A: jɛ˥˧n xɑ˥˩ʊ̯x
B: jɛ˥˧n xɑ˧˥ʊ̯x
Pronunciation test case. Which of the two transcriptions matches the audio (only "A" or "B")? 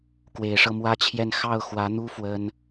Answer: A